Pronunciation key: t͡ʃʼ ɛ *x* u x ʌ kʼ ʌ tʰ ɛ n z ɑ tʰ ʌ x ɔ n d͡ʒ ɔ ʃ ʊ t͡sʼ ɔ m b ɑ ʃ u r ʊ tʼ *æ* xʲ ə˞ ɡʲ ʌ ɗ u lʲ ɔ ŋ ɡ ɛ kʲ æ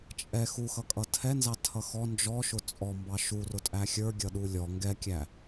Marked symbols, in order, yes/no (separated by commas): yes, yes